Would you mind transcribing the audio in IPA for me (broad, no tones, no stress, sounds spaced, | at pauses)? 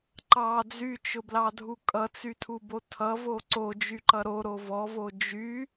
ǃ ɑ d͡z y t͡ʃ ʊ b l ɑ dʱ u kʼ ʌ t͡s y tʰ u b o tʰ ʌ v o ǀ o d͡ʒ y ǃ ʌ ɾ o ɾ o v ɔ v o d͡ʒ y